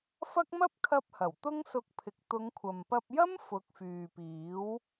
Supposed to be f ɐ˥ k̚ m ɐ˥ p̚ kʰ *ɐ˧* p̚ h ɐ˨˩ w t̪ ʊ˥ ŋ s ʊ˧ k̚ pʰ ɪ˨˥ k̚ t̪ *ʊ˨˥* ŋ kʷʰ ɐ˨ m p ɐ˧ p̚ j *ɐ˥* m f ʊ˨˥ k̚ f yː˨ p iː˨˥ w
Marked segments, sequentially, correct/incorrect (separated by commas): correct, incorrect, correct